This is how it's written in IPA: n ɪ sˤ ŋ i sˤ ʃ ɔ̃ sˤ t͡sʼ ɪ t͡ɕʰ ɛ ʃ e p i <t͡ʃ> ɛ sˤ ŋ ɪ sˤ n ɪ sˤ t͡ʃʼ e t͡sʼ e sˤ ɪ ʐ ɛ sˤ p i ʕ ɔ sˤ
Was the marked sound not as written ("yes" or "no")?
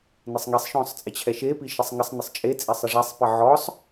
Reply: yes